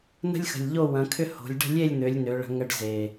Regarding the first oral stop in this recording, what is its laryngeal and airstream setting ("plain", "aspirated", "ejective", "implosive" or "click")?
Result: aspirated